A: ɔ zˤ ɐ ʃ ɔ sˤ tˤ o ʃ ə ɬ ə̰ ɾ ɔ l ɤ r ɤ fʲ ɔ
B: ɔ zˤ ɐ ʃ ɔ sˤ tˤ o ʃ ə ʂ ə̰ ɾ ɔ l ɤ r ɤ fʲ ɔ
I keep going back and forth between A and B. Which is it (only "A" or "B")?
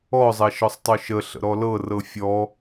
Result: A